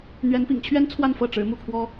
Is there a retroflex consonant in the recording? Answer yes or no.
yes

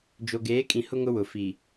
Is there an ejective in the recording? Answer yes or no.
yes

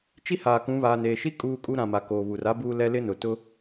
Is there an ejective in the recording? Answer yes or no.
yes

